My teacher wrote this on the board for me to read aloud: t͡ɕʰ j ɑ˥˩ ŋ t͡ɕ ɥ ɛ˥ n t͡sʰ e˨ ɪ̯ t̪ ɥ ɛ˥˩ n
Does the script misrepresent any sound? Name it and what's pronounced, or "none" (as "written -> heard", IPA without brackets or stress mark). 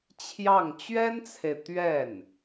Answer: none